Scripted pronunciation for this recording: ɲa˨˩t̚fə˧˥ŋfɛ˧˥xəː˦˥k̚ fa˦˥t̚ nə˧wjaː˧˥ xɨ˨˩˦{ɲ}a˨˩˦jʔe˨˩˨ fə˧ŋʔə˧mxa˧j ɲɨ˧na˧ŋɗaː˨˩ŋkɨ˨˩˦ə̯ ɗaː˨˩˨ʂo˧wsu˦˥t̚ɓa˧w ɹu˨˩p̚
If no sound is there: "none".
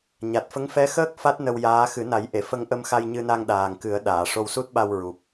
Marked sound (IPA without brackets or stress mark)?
n